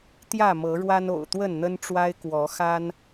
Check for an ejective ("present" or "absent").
absent